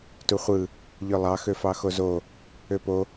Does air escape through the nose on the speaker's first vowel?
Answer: no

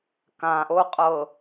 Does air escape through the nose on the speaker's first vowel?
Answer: yes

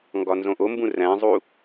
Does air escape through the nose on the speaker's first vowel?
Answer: no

